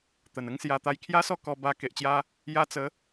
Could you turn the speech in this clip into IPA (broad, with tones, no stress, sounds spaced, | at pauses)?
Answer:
t̪ ə˨˩ n ə˥˧ ŋ s j a˧ t̪ a˧ j kʰ j a˦ s ɔ˥˧ k ɔ˧ b a˧ k e˨ ʔ t͡ɕ j a˦ | j a˧ t͡s ə˨˦